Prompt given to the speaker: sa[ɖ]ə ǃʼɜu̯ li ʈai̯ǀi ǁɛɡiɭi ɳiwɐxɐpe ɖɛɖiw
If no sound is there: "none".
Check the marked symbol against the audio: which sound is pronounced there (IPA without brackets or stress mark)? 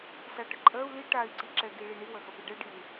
ʈ